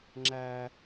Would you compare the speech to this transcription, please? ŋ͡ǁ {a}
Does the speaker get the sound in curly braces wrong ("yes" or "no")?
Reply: yes